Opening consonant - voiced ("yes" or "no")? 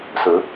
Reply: no